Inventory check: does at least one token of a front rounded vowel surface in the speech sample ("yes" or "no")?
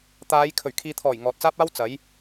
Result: no